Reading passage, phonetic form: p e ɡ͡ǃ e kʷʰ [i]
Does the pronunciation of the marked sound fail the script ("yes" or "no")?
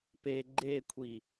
no